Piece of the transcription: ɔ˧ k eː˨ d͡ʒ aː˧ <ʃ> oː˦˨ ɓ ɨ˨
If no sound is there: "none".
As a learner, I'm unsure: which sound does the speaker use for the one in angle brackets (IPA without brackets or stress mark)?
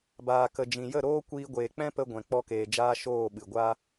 ʃ